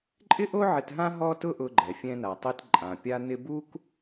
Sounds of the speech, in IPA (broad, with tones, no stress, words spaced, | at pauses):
ǃʼɪ˥ʔo˥ ʕɪ˧tɦã˥ ɦɔ˥tʊ˥ʔʊ˧ɡ͡ǃɛ˩ fʲɛ̃˧na˩tˤi˧t ǃʼã˩pʲa˧nɪ˧ bu˥k